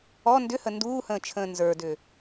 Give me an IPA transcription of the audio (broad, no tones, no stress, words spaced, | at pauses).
ɔ ndʏhə nduːhə̃ːt͡ʃʰə̃ː nzə˞dʏ